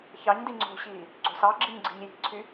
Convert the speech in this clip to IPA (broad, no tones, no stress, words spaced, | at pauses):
çɑɲdi ŋ͡ǀo̤ɕiː | ɡ͡ǀo̤sɑɡ͡ǁiɲ ɡ͡ǀi̤ɲji̤ǀʰy